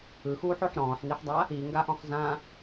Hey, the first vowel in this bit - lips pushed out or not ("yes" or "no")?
no